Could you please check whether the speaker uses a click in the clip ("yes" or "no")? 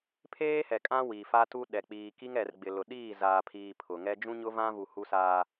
no